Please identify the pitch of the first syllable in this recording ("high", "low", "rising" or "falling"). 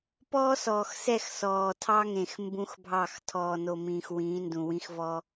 high